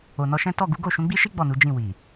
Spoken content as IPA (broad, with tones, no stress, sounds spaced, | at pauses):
o˨ n ɔ˧ ʃ ɛ̃˦ t ɔ˦˨ ɡ u˨˦ ɡ o˦˨ ʃ ũ˨˦ ɡ͡b i˦ ʃ i˦ ɡ͡b ɔ˦˨ n u˨˦ d͡ʒ ĩ˦˨ w i˨